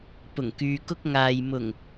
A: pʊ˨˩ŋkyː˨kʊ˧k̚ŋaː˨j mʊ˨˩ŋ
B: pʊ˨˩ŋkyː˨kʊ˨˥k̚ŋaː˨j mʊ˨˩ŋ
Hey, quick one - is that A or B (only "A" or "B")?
A